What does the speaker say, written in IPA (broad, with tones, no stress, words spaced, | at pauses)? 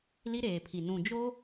li˦ɾeː˨pʰi˨ nũ˨ d͡ʒo˦